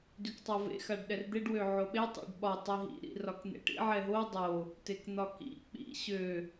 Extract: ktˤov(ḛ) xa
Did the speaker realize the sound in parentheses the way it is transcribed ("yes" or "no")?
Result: yes